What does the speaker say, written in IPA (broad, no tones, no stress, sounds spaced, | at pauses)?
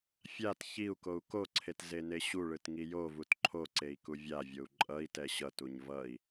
fʲ a t ç i u̯ k o u̯ k o ǀʰ e t z e n e ɕ u ɭ ɯ t ŋ i j o v u t ǃʰ o ǀ e i̯ k u vʲ a vʲ o u̯ ǃʼ ʌ i̯ t ɛ ɕ ʌ t u ɲ v ʌ i̯